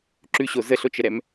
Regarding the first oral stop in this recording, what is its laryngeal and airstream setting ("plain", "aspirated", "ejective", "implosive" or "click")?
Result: click